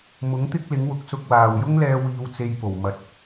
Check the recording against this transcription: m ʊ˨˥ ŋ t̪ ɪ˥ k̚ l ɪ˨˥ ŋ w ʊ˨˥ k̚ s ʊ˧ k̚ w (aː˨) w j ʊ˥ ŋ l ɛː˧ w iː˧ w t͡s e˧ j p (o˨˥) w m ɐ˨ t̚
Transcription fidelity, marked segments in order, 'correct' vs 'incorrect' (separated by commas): correct, incorrect